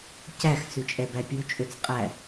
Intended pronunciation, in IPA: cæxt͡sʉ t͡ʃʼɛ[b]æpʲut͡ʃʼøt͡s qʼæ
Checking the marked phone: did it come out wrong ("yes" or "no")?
no